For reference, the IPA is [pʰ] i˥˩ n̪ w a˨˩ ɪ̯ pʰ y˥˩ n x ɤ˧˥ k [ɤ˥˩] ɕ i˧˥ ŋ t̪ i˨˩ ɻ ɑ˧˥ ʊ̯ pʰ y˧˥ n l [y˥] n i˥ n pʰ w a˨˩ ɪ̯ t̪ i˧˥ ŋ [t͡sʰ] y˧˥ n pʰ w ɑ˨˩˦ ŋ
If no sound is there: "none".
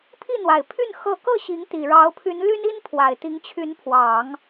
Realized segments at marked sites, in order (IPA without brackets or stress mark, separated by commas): pʰ, ɤ˥˩, y˥, t͡ɕʰ